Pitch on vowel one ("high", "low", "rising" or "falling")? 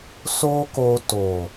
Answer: high